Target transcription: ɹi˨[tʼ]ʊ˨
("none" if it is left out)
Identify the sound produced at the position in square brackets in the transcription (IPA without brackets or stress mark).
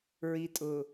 tʼ